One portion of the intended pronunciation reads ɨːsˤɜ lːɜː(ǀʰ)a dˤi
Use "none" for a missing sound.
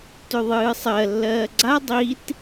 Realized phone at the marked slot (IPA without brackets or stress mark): ɡ͡ǀ